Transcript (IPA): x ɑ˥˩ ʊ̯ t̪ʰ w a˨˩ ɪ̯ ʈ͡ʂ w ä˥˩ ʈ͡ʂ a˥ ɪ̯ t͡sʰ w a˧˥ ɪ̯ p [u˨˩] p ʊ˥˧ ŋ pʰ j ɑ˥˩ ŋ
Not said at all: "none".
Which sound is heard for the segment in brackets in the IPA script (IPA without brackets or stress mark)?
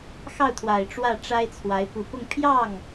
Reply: u˨˩